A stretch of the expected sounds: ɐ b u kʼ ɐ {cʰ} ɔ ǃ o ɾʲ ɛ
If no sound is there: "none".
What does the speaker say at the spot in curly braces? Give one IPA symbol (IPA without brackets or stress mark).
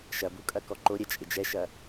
k